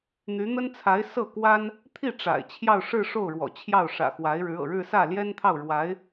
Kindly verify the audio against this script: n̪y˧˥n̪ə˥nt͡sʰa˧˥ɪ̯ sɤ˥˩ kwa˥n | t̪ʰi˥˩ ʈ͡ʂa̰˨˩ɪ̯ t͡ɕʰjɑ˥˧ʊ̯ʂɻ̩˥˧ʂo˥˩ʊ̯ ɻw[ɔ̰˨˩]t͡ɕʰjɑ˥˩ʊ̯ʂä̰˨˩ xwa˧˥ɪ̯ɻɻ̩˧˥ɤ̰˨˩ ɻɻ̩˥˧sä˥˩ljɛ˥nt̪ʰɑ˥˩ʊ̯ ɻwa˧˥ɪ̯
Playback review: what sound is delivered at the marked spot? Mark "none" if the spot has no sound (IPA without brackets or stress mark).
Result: ɔ̰˨˩